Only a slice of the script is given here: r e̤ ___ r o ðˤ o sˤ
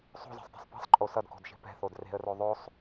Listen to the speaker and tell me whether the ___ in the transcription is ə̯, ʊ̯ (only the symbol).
ə̯